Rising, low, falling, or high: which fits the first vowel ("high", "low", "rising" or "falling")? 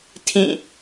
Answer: falling